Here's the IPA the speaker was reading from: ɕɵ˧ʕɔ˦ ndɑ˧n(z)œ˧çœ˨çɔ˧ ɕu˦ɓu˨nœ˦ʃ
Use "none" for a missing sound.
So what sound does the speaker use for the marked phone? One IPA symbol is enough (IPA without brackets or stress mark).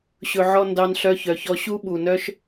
ɬ